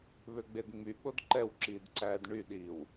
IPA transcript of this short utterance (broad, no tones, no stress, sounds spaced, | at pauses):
β ø ɡ͡b e d ŋ͡m y ɓ o d ǃ ɛ w ǁ iː d ǀ æː d ɳ y ɗ iː w